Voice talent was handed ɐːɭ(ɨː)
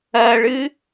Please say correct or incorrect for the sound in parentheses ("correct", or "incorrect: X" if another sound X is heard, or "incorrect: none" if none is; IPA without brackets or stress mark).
correct